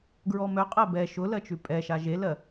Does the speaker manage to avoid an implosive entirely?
yes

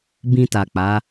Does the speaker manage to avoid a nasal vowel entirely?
no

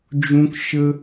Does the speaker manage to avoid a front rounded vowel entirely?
yes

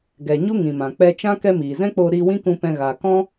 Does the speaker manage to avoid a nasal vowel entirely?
no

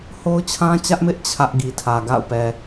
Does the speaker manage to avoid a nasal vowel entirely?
no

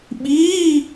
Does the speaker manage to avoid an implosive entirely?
no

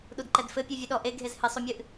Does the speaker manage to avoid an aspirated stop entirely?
yes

